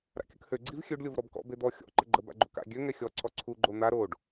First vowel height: low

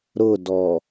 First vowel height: high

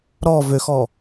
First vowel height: mid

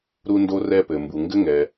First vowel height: high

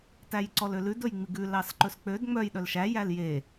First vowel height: low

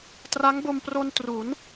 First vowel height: low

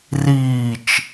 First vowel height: high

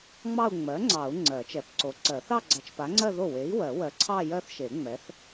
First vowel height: low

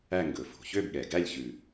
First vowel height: low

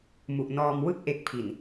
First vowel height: high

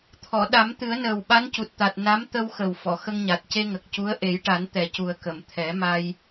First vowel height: mid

